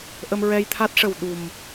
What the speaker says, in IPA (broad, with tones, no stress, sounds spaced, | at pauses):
ʔ ə˧ m ɹ ɛ˧ j t̪ʰ a˦˥ t̚ ʂ ə˨˩ w ɗ u˨˩ m